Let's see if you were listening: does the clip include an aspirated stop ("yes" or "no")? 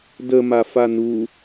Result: no